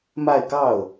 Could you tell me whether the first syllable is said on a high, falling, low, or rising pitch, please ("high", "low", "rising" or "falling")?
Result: falling